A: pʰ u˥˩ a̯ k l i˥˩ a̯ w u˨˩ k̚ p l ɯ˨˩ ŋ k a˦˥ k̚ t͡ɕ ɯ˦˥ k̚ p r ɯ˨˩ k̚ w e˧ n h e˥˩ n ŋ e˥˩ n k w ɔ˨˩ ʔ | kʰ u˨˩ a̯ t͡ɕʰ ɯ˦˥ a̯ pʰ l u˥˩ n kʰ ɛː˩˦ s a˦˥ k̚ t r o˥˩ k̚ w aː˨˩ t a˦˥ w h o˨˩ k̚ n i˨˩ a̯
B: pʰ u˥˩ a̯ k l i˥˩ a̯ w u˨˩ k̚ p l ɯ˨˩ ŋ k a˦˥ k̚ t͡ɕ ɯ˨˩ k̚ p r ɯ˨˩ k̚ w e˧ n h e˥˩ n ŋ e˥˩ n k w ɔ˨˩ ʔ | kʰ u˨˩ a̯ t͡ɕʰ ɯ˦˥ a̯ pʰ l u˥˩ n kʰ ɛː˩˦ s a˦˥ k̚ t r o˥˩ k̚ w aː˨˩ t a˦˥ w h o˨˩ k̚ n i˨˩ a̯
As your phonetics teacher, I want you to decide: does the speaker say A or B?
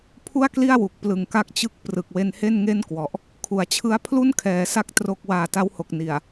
A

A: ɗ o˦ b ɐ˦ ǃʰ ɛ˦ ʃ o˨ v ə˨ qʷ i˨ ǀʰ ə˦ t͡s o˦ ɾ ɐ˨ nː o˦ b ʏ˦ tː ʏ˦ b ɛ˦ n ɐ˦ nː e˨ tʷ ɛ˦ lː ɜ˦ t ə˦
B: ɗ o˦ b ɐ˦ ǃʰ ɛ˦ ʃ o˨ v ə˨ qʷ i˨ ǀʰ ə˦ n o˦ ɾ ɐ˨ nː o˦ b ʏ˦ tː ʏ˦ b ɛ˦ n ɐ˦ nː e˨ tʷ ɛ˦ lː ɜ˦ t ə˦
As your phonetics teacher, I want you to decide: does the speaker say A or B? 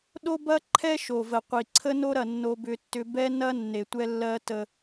B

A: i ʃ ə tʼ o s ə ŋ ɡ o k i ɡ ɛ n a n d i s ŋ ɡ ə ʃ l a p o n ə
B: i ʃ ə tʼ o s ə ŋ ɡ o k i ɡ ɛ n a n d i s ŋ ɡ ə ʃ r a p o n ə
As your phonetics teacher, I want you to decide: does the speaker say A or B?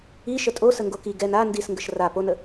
B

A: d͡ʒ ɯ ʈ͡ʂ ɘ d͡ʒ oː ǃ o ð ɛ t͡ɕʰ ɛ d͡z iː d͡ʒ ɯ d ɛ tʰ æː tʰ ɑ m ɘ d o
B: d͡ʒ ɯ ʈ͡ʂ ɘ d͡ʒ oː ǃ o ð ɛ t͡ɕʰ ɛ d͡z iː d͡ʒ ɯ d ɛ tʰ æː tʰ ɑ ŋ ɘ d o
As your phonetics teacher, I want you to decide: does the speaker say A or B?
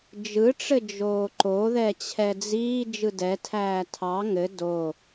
B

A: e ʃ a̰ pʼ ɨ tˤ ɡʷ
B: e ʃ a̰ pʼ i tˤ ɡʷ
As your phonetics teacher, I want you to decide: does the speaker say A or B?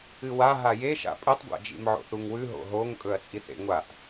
A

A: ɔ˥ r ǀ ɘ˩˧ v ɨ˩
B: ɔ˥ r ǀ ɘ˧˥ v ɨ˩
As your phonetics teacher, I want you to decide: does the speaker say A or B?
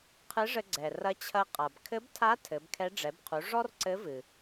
B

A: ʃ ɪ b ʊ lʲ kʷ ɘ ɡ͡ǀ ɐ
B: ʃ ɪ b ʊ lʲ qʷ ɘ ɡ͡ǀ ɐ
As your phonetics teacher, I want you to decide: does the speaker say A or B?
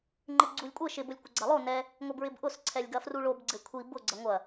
A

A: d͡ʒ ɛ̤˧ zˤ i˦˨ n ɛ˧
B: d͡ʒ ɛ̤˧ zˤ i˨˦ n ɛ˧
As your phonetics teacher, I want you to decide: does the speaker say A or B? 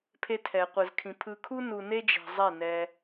A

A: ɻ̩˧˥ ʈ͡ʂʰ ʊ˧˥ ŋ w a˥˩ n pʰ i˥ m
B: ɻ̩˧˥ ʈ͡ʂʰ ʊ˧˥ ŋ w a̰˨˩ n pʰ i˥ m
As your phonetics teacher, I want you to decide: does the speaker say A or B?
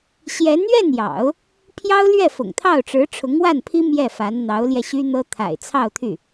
A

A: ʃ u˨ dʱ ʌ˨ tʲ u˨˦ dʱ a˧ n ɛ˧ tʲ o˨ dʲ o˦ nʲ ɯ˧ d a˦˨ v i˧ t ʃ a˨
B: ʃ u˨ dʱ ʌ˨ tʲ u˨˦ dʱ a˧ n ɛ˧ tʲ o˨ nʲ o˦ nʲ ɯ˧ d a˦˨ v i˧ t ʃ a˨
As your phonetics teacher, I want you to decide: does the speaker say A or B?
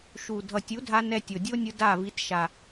A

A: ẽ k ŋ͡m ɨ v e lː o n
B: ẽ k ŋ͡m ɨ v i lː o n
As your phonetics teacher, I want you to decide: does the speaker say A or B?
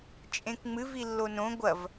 B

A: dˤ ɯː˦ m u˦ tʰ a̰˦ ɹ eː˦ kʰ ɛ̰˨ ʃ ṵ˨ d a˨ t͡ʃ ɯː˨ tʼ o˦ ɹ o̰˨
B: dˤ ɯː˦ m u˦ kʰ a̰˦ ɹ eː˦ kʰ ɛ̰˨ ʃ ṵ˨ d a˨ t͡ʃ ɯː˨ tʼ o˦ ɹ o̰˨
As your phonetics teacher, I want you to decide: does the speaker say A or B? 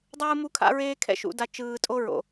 B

